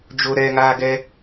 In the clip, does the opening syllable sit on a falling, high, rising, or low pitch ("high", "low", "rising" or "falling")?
high